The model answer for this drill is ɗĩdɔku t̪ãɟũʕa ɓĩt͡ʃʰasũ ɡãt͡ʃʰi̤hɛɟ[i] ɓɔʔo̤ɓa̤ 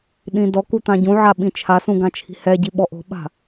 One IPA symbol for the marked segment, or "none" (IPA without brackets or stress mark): i